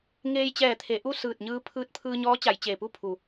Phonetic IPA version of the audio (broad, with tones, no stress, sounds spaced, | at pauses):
ŋ eː˧ j t͡ɕ ɛː˧˩ t̪ʰ e˩˧ ʔ u˥˨ s ɯː˧˩ t̚ ɲ ɯː˧ pʰ ɯː˧˥ t̚ pʰ ɯː˧ ɲ ɔː˧˥ t͡ɕ a˩˧ j t͡ɕ eː˩ p u˥˨ pʰ u˩